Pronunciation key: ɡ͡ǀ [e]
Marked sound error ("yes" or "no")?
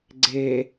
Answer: no